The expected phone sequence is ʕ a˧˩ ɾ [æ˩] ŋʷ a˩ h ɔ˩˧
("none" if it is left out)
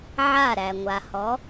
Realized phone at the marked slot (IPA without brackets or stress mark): æ˩